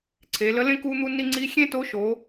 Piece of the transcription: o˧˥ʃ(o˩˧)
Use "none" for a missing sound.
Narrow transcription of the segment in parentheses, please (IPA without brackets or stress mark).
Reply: o˩˧